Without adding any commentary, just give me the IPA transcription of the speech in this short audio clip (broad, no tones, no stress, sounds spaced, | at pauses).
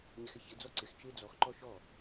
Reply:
ɲ ɪ x ɪ ç ɪ d͡z ɔ ǀ ɪ x t͡ʃ ɪː d͡z ɔ x ǃ ɔ ʃ ɔ